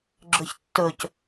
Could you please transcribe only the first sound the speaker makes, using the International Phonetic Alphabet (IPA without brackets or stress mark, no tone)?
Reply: ɡ͡ǁ